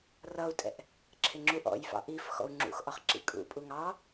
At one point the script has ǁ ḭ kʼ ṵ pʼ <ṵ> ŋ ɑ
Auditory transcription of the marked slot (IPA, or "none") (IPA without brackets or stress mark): u